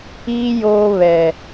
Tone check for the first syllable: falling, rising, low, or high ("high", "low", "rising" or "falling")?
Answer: high